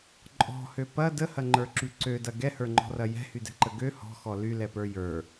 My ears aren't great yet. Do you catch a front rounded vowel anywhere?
yes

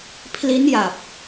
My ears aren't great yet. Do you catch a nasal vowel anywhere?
no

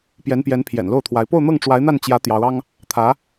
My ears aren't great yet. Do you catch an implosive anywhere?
no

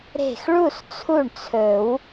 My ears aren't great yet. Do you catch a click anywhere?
no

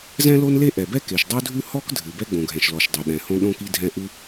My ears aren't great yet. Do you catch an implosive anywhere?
yes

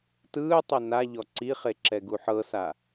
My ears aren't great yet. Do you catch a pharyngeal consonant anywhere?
yes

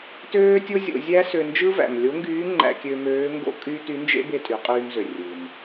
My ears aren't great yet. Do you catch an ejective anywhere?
yes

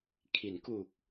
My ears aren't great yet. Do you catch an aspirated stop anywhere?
yes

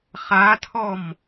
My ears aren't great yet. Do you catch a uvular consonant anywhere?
yes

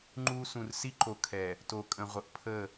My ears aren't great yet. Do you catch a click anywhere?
yes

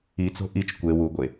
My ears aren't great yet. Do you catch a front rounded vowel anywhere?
no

